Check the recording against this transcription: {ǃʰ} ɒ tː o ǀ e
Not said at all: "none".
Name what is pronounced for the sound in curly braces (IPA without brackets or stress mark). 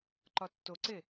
ǃ